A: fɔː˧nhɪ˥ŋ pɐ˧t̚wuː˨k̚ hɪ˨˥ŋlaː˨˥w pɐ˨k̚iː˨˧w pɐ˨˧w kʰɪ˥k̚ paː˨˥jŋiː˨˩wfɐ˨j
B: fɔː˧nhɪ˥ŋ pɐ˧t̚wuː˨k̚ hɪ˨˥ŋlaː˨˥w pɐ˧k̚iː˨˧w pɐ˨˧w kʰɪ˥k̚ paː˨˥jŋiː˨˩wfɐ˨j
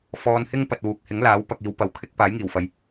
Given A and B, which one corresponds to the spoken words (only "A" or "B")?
B